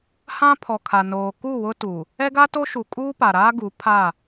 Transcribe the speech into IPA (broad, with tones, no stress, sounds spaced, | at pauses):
h ã˦ pʰ ɔ˨ kʰ a˨ n oː˨ k u˦˨ w ʊ˦ t u˨ | ɛ˦ ɡ a˦ t o˦ ʃ u˨ kʼ uː˦ p a˨ ɾ aː˦ ɡ u˨˦ pʰ a˦˨